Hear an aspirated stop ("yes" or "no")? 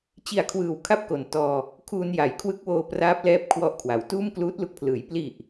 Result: yes